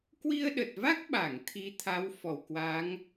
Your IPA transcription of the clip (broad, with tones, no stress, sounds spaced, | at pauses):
k w i˧ ə̯ ɗ ə˨˩ t̚ v a˦˥ k̚ ɓ a˧˩ ŋ t̪ʰ i˨˦ t̪ʰ a˨˦ w f ɔ˧˩ w k w a˨˦ ŋ